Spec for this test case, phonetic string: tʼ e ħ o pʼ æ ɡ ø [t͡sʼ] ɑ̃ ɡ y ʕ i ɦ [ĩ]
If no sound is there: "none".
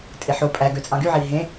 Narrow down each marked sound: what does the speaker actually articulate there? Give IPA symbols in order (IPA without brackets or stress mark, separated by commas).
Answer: t͡sʼ, ẽ